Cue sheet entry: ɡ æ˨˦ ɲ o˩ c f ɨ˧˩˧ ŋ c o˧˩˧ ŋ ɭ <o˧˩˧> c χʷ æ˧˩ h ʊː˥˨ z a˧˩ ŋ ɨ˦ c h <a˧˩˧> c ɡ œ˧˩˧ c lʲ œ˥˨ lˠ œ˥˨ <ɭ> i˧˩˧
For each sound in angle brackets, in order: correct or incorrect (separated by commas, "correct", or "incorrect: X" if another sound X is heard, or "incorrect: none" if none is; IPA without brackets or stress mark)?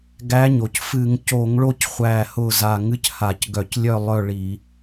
incorrect: o˥˨, correct, correct